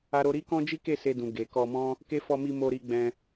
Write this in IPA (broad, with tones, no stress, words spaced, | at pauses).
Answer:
a˦ɾo˦ ɾi˦kɔ̃˦d͡ʒi˦ke˦˨ se˧dũ˨ ɡe˨ kɔ˧mɔ̃˦ | ke˦ fɔ˧mi˧ mo˧ɾi˧ ɡ͡bɛ̃˧